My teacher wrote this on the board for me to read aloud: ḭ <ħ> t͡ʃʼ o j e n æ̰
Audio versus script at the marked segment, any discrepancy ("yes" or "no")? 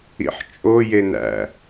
no